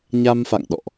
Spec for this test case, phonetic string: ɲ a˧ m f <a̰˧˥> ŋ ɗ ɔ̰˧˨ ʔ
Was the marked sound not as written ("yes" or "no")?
yes